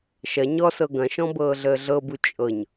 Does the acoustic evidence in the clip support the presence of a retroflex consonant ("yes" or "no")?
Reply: no